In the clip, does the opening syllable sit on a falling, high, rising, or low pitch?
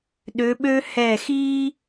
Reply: rising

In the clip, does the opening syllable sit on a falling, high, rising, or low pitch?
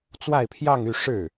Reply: falling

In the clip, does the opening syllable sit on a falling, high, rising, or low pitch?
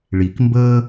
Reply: low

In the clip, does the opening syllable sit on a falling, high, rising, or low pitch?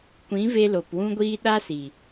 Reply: rising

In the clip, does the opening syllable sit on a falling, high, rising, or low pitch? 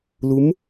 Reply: rising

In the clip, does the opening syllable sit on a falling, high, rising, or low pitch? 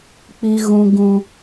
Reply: high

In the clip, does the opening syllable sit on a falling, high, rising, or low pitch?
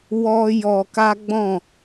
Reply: high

